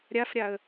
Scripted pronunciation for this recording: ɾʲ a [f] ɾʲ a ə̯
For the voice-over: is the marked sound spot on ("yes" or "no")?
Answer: yes